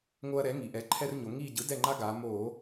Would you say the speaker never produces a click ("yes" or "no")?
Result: no